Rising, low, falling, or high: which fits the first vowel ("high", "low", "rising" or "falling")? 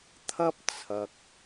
high